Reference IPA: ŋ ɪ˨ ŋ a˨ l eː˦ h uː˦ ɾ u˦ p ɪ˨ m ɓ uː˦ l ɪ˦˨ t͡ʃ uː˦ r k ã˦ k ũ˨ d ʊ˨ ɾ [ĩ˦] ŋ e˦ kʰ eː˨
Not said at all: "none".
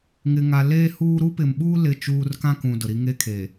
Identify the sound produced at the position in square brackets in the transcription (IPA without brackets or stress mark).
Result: i˦